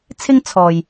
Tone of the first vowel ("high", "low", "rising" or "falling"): high